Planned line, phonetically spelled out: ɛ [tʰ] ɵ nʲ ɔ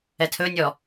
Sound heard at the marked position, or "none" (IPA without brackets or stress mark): tʰ